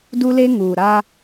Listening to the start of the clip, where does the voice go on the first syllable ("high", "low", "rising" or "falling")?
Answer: high